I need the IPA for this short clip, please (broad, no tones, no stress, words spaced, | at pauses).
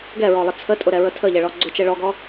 ɡɛɹɔlˠə t͡sʰətʼʊɾɛɹə tʰəʎɛɭɔ ɡ͡ǀʊt͡ʃɛ ɭɔɡɔ